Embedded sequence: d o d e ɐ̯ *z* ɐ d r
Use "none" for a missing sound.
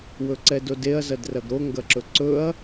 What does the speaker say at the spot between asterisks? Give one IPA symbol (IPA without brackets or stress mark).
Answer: z